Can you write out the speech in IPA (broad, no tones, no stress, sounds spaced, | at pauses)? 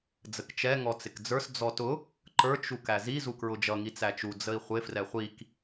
d͡z ə k t͡ʃ ɛ ŋ ɔ t͡s ɪ k d͡z ə˞ s d͡z ɔ t ʊ | ǃ ə˞ t͡ʃ u k æ z i z u k ɹ ʊ d͡ʒ ʌ ŋ i t͡s æ t͡ʃ u d͡z ə i̯ χʷ ɪ f r ɛ χʷ i k